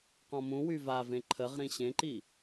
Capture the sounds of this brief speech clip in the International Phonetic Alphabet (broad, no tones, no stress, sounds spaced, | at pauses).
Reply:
q ɔ̃ m ũ w y v a v ẽ ǃʰ ə ʁ ɾ ĩ ɕ ẽ ǃ i